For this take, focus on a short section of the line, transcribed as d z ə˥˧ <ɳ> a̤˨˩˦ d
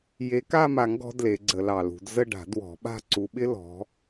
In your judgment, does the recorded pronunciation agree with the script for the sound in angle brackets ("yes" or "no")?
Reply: no